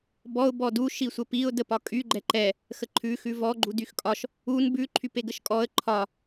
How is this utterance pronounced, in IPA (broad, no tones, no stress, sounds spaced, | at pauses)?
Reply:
b ɔ ʊ̯ b ɔ d u ʃ i sʷ ə p i ʊ̯ d ə p ɒ kʼ y ɡ͡ǃ ɛ ǃ ɛ | x ə ǃʰ ʉ x ʉ v ɔ ɡ͡ǃ u d y x kʼ ɒ ʃ | u n b ʉ ǃʰ y p e ɡ ə ʃ kʼ ɔ ə̯ ǃʰ ɒ